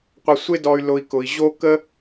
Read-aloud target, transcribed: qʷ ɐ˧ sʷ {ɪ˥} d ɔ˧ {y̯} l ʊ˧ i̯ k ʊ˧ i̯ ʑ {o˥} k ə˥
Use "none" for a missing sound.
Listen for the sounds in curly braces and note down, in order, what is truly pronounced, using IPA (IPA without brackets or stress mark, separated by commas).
ɪ˥, y̯, o˥